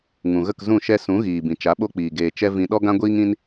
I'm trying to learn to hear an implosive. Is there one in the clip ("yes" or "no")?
yes